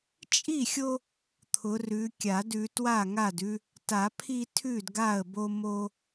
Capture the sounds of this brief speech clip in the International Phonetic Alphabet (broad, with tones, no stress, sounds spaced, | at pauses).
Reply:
t͡ʃʼ i˥˩ xʲ o˦ | t̪ʰ ʊ˨˦ r ʉ˨˦ kʲ a˨˩˦ d ʉ˨˦ t w a˥˩ ŋ a˥˩ d ʉ˦ | t a˨˩˦ pʰ i˦ tʰ ʉ˥˩ d ɡ a˥˩ ə̯ b o˦ m o˦